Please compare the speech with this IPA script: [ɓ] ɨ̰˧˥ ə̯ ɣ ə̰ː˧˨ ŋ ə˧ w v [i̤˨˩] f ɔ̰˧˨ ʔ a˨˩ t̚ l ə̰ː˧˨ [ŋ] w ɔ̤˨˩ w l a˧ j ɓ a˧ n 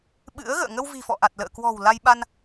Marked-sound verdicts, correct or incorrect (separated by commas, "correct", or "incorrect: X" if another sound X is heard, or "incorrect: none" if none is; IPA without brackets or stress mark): correct, correct, incorrect: k